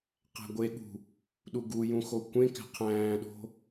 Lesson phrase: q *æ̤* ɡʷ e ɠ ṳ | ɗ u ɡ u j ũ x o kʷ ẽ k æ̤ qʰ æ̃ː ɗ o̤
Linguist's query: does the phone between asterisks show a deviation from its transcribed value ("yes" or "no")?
no